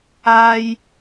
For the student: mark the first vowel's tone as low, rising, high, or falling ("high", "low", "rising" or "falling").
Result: high